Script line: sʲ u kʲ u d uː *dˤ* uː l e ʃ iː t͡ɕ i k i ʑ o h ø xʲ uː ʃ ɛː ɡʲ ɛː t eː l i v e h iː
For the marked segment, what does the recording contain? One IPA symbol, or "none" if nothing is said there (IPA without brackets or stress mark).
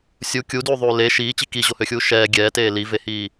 ðˤ